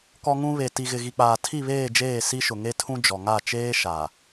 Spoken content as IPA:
k ɔ˦ ŋ ũ˦ β e˨ t i˨ ɣ ɪ˨ ɣ i˨ k͡p aː˨ tʰ i˦˨ β eː˦˨ d͡ʒ eː˦˨ s i˦ ʃ ʊ˨ ŋ e˦ tʰ ũ˦ d͡ʒ ɔ˨ ŋ a˦˨ t͡ʃ eː˦ ʃ a˨

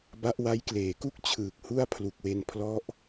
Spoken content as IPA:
b a˦˥ ʔ w a˦˥ j k l eː˩˦ k u˥˩ k̚ t͡ɕʰ ɯː˨˩ k̚ h u˥˩ a̯ pʰ l u˨˩ k̚ w e˧ n pʰ l ɔ˦˥ ʔ

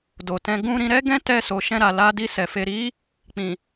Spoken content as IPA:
d o˨ t ɛ̃˧ ɡ ũ˧ ɾ ĩ˧ ɾ ɛ˦ ɡ ɛ̃˦ t ɛ˧ s o˨ ʃ ɛ̃˧ ɾ a˨ l a˧ d i˧ s ɛ˨ f e˧ ɾ i˦ | k͡p ĩ˨

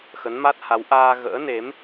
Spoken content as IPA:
x ə˨˦ n m a˦˥ t̚ h a˨˦ w ʔ aː˧ ɣ ə̰ː˧˥ n e˨˦ m

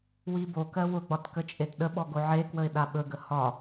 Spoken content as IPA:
w i b o k ɜ w ʊ ɡ͡b ɒ t k ə t͡ʃʼ e t ɗ ə ɓ ɔ ɡ o ʕ e k w ə ɪ̯ ɗ a ɓ ɵ ɡ ə h ɒ

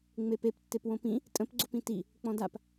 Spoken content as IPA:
ŋ͡m e p e p tː e p w õ p ĩ | tʼ ə̃ p ɡ͡ǀ o p ĩ t i | k͡p ɔ̃ d a p

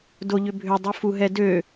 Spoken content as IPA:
d o ʎ ʏ bʱ ʏ dˤ u f u ɦ ɛ d ø

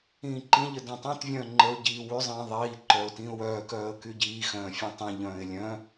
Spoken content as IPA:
ĩː ǃ ĩ ʎ ə d õ tˤ ẽ t vʲ œ̃ː ŋ͡ǃ ə ʊ̯ ɟ iː w y zˤ ĩː ðˤ iː ǃ œ ʊ̯ t ĩː ʊ̯ w œː k œː ə̯ k y ɟ iː x œ̃ː fʲ ẽ tˤ ĩ ʎ œ̃ː ɪ̯ lʲ œ̃

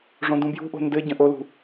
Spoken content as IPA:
ʐ õ d ũ b j ṳ ʔ o̤ n d ɘ ɟ ə̃ ʔ o l ṳ

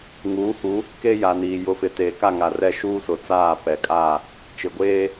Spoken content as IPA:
ŋ uː˨˦ h u˨˦ | k e˦ j a˨ n iː˨ j ʊ˨ f ɪ˨ t eː˨ k a˦˨ ŋ a˨ r ɛ˦˨ ʃ uː˦ s ʊ˨ t͡s aː˦˨ p ɛ˨ kʼ a˦˨ | t͡ʃ ɪ˨ ɡʷ eː˦

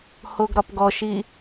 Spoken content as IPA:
h o ɡ ɾ ɒ p ɡ ɔ ʃ i

